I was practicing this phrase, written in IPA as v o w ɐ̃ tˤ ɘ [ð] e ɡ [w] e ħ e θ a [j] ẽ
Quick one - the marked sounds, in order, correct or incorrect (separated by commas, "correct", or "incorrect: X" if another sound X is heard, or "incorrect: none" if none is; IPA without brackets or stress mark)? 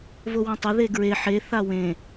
correct, incorrect: ɹ, incorrect: w